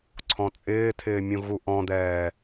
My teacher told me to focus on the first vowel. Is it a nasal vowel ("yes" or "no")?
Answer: yes